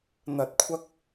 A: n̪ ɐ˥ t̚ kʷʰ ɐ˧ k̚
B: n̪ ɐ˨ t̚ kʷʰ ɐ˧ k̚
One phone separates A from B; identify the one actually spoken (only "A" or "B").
B